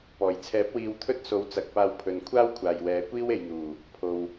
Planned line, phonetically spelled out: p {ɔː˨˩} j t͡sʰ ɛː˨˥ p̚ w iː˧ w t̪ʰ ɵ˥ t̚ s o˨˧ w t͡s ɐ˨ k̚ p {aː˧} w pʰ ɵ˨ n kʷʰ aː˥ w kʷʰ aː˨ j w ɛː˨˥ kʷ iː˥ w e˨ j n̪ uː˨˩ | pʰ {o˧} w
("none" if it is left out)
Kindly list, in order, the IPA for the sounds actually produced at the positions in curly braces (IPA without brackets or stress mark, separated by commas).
ɔː˨˩, aː˧, o˨